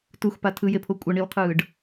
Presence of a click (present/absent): absent